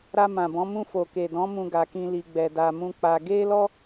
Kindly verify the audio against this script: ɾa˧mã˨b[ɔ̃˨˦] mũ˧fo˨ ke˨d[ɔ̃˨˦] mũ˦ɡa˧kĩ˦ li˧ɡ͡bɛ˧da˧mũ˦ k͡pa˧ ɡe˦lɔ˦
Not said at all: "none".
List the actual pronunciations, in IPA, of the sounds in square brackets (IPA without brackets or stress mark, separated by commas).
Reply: ɔ̃˨˦, ɔ̃˨˦